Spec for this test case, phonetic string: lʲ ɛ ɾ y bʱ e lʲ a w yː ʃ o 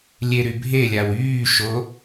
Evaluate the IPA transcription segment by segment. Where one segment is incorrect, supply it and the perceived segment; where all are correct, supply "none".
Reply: ɛ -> e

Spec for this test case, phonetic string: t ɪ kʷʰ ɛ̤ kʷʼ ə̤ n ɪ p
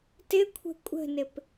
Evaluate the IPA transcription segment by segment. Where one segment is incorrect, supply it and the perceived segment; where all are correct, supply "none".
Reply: ɛ̤ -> ə̤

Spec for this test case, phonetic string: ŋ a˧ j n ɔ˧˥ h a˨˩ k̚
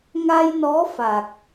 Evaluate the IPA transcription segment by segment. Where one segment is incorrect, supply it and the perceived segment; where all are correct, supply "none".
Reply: h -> f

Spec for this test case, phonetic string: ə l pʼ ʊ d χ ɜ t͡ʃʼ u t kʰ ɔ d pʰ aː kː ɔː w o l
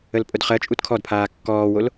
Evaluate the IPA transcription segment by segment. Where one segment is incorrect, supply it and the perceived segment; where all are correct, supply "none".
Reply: none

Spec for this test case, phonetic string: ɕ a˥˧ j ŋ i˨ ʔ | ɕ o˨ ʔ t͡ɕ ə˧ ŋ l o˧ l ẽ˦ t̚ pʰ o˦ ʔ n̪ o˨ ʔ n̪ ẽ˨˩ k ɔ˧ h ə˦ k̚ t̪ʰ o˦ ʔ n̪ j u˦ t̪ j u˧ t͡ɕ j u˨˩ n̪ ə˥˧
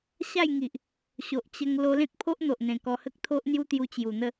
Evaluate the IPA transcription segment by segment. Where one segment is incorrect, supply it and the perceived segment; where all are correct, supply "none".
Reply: none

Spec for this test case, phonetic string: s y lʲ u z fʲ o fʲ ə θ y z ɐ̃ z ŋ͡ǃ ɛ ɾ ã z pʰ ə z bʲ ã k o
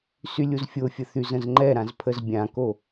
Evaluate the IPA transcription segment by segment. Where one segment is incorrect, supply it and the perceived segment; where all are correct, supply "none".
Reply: ɐ̃ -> ə̃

